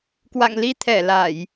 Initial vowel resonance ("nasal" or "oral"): oral